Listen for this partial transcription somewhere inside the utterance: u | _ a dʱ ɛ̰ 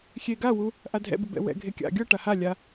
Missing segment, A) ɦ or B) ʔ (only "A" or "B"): B